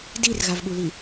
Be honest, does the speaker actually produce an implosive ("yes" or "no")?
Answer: yes